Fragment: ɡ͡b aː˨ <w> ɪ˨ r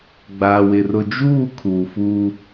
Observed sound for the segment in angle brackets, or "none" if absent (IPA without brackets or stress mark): w